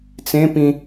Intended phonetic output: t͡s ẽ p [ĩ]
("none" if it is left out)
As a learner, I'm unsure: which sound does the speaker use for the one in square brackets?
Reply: ĩ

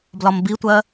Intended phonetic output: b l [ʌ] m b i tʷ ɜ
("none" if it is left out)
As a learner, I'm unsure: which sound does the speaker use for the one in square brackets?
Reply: ɒ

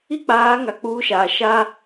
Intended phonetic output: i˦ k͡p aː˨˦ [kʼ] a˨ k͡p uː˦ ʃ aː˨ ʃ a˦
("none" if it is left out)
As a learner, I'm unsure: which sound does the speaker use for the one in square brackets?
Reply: ŋ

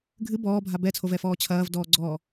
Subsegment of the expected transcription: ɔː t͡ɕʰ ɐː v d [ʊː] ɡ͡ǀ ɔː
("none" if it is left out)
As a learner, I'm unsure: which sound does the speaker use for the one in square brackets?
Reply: ɔː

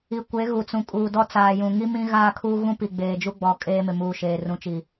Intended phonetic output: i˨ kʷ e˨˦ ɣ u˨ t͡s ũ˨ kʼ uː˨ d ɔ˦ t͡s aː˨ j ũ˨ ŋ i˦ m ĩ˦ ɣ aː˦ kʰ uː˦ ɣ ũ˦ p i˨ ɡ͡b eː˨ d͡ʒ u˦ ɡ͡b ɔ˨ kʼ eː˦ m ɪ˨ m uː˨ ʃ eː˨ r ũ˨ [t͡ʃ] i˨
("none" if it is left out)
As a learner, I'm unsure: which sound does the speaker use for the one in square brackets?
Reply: t͡ʃ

